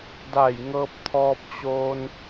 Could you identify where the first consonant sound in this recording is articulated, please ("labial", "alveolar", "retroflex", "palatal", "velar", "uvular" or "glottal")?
alveolar